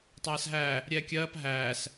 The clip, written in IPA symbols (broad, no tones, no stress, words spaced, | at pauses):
tˤæːsɦæ | ɾʲɛːkʲɜːp ɦæːs